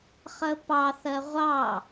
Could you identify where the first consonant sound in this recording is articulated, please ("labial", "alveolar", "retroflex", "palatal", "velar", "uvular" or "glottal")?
uvular